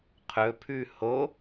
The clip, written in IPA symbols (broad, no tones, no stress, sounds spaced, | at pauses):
qʰ ɵ pʰ ʉ h o